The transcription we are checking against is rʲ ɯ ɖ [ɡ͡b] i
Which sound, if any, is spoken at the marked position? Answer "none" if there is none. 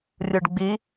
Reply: ɡ͡b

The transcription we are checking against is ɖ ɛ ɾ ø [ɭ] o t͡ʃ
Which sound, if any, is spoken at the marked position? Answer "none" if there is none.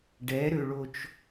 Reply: ɭ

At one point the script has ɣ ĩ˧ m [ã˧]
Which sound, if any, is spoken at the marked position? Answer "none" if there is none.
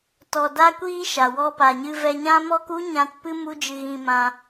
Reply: ã˧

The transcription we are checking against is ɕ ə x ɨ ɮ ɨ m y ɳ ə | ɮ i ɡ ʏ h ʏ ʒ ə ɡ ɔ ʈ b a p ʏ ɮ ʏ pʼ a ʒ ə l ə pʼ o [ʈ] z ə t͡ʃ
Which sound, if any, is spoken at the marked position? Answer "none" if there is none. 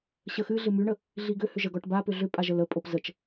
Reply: p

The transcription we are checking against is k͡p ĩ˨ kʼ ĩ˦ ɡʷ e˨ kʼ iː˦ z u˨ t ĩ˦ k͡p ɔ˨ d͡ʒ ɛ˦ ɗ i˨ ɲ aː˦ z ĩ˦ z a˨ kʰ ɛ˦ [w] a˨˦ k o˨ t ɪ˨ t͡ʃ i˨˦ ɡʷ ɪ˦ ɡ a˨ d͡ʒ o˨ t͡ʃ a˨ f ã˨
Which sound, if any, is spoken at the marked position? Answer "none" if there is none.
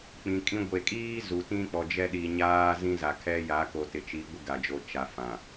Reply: j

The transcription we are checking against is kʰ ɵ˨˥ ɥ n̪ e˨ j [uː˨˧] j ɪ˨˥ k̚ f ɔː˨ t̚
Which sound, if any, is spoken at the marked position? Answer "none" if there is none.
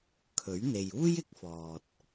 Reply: uː˥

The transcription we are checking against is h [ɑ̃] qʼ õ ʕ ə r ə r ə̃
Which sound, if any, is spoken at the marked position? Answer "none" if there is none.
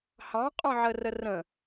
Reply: ɑ̃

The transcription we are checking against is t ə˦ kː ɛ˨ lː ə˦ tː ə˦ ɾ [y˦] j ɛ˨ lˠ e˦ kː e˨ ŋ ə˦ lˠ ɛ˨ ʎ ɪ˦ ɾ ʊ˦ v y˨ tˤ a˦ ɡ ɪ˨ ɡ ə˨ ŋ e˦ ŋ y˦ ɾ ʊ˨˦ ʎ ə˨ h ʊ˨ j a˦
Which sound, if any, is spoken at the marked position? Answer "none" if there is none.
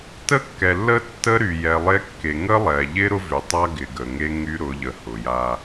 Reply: y˨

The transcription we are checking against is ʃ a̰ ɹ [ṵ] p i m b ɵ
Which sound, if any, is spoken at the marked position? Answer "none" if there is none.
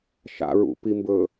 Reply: ṵ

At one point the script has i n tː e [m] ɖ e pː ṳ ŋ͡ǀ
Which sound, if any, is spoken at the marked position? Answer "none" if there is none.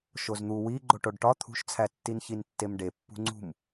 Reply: m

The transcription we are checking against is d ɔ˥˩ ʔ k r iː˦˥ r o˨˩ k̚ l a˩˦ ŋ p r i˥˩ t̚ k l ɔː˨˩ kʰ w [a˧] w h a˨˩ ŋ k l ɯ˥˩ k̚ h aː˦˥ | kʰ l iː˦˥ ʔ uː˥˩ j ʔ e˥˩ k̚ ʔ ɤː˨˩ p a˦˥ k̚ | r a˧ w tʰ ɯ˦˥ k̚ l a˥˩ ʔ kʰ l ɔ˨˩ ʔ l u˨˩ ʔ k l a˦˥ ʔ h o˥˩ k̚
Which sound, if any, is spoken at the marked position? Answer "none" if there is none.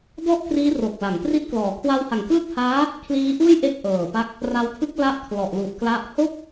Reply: a˧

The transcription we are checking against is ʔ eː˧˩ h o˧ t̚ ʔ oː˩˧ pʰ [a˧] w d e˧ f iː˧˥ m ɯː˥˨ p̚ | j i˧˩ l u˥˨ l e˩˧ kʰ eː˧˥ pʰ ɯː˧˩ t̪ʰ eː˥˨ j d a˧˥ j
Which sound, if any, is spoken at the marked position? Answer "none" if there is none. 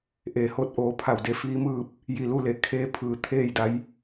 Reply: a˧˩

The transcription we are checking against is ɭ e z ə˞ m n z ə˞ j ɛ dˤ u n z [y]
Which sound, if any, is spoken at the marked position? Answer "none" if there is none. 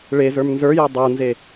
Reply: e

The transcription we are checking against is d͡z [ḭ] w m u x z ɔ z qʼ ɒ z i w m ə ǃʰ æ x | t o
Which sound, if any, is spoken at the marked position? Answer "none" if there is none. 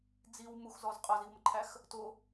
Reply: i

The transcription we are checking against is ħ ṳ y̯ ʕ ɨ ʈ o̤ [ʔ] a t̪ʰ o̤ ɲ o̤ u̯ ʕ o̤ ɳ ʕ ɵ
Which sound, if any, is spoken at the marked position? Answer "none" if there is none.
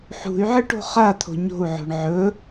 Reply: χ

